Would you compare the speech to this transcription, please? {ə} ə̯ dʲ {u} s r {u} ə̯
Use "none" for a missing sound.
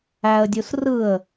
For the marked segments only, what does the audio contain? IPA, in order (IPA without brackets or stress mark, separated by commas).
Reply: æ, u, ɯ